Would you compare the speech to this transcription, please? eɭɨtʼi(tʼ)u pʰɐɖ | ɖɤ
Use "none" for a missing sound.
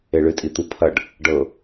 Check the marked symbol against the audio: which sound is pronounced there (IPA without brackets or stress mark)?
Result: t̪